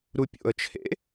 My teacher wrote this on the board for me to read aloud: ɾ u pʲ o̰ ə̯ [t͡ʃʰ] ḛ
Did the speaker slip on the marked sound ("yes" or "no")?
no